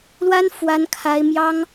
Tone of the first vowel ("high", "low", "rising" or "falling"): high